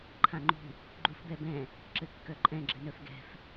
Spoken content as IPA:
ǃʰ ã ŋ͡ǃ ṳ | ɡ͡ǃ u f b ɛ b ɛ̃ | ǁ ɘ kː œ ǃʼ ɛ̃ ɡ͡ǁ ɘ n œ f ɡ ɛ̤ f

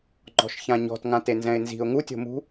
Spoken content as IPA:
ŋ͡ǃ ɔ̤ ʃ ç ã ɲ ɔ̤ t ŋ ã t e n z ɛ̃ ɪ̯ n z i̤ ʊ̯ ŋ u tʲ o̤ m ṳ

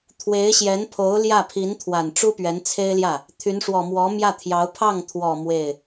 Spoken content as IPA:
t̪ʰ w e˧˥ ɪ̯ ɕ j ɛ˧˥ n pʰ o˧˥ ʊ̯ l j ä˥˩ pʰ i˧˥ n t̪ʰ w a˨˩ n ʈ͡ʂ u˥ p ɥ ɛ˧˥ n t͡sʰ e˥ ɪ̯ l j ä˥˩ | t̪ʰ y˧˥ n ʂ w ɔ˨˩ m w ɔ˧˥ m j ä˥˩ t̪ʰ j ɑ˧˥ ʊ̯ pʰ ɑ˥˩ ŋ t̪ʰ w ɔ˨˩ m w e˥˩ ɪ̯

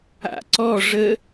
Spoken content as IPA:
a̰ ǀ ɔ ʐ ə

